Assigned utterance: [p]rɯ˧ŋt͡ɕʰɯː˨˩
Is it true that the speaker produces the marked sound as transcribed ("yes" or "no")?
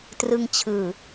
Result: no